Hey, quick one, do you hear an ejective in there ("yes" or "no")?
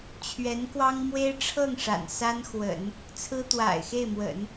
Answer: no